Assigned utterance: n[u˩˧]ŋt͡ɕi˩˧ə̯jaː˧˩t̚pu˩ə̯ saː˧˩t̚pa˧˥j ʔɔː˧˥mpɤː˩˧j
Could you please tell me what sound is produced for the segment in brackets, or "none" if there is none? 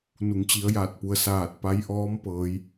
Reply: u˩˧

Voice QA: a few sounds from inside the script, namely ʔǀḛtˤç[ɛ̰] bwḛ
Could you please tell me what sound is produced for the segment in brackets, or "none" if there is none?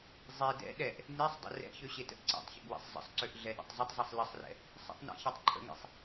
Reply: ə̰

